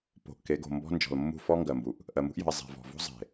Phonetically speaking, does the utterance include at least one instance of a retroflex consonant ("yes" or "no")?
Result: no